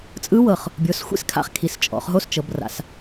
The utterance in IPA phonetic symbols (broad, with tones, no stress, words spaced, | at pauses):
t͡sʼɯ˦˥wɤ˨˩χ | bʲo˩˥sxʷḭ˦˥skʰa̰˧χkʰi˩˧s t͡ʃʼɔ̰˩˧χɦo˦˥s t͡ʃɤ˩˧bra̰˩˧s